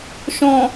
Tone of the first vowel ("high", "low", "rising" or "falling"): low